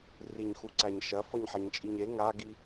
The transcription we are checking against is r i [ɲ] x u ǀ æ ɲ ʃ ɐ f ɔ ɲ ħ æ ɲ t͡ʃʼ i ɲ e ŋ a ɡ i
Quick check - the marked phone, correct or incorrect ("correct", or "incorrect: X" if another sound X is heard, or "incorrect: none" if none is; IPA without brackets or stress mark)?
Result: correct